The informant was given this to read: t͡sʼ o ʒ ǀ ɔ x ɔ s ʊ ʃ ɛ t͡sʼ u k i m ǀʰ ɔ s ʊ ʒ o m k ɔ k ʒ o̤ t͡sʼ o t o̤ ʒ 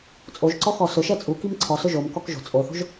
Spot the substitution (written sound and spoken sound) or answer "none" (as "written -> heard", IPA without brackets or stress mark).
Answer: t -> θ